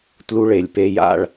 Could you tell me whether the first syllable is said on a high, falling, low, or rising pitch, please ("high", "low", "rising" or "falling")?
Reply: high